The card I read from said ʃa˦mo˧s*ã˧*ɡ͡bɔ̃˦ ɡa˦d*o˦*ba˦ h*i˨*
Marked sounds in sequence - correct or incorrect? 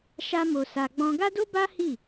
incorrect: a˧, correct, incorrect: i˦˨

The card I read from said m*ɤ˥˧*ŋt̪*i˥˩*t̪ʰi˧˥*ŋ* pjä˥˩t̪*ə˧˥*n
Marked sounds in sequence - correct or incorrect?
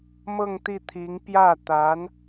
correct, correct, correct, incorrect: a˧˥

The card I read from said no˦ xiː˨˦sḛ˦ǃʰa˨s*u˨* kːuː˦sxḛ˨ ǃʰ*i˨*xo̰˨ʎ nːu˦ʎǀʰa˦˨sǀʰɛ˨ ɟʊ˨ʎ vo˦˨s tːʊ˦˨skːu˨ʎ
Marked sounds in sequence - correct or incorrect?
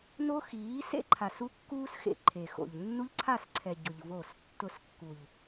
incorrect: u˦, incorrect: e˨

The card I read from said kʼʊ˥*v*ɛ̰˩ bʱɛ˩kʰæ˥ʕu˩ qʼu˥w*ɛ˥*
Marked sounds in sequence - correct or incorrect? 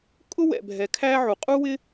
incorrect: w, incorrect: ɪ˥

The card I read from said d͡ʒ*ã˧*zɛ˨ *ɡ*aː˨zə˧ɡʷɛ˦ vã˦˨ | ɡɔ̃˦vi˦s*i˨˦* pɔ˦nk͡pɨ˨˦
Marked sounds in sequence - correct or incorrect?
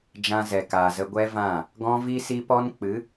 correct, incorrect: k, incorrect: i˦

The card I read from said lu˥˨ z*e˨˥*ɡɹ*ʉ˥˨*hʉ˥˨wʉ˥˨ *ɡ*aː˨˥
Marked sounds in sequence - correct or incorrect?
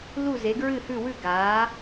correct, incorrect: ɨ˥˨, correct

